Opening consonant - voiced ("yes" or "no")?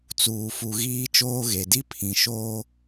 no